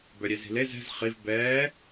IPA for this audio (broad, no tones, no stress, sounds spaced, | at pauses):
b œ ɾʲ e z i̤ l e z ɛ̤ z χ i v b ɛː